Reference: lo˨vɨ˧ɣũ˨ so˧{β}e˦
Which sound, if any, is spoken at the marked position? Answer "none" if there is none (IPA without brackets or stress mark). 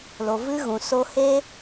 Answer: h